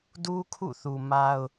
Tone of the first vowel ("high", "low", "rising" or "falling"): high